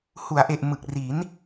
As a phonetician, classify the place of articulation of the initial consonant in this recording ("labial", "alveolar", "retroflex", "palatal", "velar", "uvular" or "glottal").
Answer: glottal